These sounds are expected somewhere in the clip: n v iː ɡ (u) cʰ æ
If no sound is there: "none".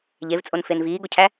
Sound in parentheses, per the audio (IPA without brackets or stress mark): o